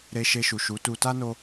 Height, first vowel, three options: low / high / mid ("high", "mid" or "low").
mid